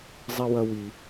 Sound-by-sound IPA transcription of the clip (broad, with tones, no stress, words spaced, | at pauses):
zˤi˦wɐ˦wi˧